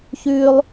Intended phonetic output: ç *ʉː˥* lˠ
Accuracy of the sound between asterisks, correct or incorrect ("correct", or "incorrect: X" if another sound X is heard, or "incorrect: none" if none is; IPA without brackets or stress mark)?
correct